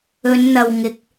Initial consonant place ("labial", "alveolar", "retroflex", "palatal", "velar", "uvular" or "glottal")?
alveolar